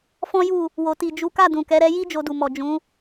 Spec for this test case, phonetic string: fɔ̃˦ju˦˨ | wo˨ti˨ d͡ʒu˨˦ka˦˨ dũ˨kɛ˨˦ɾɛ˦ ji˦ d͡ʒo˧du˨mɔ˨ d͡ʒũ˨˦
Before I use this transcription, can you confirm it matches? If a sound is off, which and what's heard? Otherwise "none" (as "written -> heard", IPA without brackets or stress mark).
none